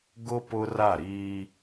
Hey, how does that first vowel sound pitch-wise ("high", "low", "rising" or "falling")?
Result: high